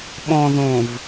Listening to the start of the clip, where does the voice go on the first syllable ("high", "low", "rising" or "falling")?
low